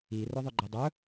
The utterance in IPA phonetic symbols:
i r ɵ ðˤ ɵ ɡ͡ǃ e dˤ ɵ

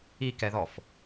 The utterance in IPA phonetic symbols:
i k ɛ ð ɔ f

